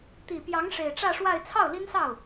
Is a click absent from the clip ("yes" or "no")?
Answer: yes